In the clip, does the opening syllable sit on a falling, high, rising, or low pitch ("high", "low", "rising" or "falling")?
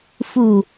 falling